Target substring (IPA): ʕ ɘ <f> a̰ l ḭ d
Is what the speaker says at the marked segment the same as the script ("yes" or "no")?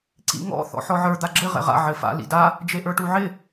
yes